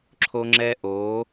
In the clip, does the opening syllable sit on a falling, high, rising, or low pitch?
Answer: high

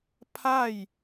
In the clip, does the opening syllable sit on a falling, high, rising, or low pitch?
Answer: falling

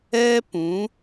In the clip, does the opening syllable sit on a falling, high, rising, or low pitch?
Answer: high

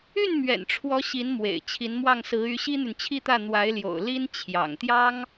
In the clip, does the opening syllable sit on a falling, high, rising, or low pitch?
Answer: falling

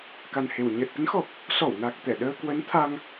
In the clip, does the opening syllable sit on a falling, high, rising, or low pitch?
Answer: low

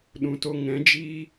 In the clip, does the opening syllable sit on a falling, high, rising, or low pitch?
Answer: low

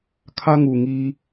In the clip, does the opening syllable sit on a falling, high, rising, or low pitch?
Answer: high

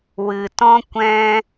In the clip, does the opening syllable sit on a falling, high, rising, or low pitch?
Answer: low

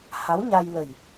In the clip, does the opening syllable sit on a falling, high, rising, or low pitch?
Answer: rising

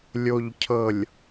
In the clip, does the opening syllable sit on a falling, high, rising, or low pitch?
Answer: low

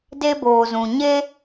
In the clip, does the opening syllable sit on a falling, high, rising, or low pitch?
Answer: high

